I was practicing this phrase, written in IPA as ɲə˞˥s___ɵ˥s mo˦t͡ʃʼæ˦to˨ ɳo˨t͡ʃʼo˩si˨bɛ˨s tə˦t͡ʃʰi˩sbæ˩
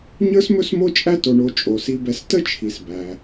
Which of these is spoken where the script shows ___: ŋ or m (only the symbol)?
m